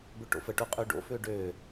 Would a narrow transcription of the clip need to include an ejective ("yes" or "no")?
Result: yes